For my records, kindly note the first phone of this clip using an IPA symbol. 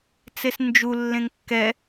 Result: t͡s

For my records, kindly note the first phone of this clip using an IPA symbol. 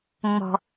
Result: ŋ͡m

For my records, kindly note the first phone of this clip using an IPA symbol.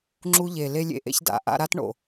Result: ŋ͡ǁ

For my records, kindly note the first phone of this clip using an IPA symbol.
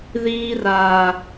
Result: ð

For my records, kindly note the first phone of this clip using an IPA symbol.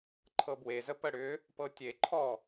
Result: ǃʰ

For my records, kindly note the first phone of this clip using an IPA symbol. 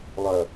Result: lˠ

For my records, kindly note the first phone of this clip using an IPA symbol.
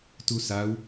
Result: t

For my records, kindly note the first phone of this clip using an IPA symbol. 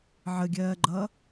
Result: ʕ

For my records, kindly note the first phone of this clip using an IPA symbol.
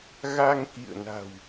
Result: ɣ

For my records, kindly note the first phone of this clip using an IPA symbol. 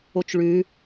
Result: o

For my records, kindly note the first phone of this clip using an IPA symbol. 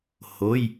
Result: h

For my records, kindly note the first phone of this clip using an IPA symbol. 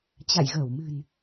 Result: t͡ɕ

